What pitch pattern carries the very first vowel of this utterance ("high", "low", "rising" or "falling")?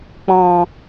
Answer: low